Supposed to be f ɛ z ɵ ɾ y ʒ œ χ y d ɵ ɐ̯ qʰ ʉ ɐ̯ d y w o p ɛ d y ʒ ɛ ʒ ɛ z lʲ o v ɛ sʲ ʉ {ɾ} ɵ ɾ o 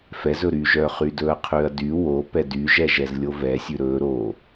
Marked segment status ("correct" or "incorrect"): correct